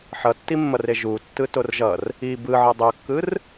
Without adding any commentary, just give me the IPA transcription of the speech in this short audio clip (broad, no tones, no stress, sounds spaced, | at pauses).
ħ ʌ tː i mː ʌ r e ʒ u tː ɯ t o r ʒ ʌ r | i b ɯ ʕ ʌ dˤ o kː ɯ r